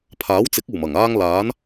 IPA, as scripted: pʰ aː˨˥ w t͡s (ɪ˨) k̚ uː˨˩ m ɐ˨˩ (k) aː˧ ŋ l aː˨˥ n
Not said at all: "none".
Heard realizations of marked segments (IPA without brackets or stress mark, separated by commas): ɪ˨˥, ŋ